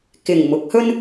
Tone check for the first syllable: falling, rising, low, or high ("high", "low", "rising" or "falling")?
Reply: low